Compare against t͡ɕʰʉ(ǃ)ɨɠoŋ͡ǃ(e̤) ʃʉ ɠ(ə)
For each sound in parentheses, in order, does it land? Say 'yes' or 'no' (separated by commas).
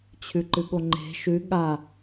yes, yes, no